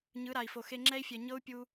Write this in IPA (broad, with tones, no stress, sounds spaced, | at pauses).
ɲ ɯ˨˦ ɾ a˨ i̯ f o˨ x e˧ ŋ͡ǁ ɛ˦ i̯ fʲ ɛ˨ ɲ ɤ˦ u̯ pʲ u˧